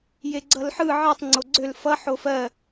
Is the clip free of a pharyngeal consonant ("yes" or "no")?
no